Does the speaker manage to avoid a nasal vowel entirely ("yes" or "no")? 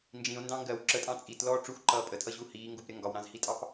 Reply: no